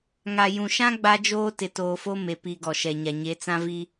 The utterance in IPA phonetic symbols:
ŋa˨jũ˨ʃã˦ ɡ͡ba˦d͡ʒoː˦ tɪ˨toː˨fo˦me˨ pi˨ ɡɔ˨ʃɛ˨ɲa˨ ɲe˨˦t͡sã˦vi˦

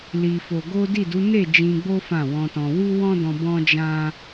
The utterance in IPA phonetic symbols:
li˨ fo˧ ɡo˦ di˦˨du˨˦ ne˦˨ d͡ʒĩ˧ɡ͡bo˦ fã˦˨wɔ̃˧tɔ̃˧ wu˦wɔ̃˦dɔ̃˧ bɔ̃˦d͡ʒã˦

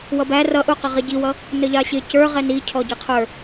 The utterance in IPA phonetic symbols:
wʌbæ rʌ ʔuqəʁɪ ɟiwʌ | nəʎɑɕɪ cə˞ ʁɛnicʰɔ ɟiqʰə˞

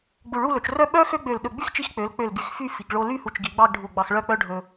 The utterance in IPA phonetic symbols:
ɡ͡bu˧˩ɭu˥˧lɵ˩˧t͡ʃrœ˥ ɓœ˥ xø˥ ɡ͡bø˧˩lɗɵ˧˩ ɡ͡by˥˧xt͡ʃi˧xk͡pø˩˧l k͡pø˧˩l ɡy˧˩xfy˥˧fi˩˧ɡ ɭo˧ly˥˧ hu˧˩t͡ʃɡi˩˧ɡ͡bɑ˥˧ɡɖʱu˧˩ ɡ͡bɑ˧xɭœ˥˧k͡pœ˥ɖʱɵ˧

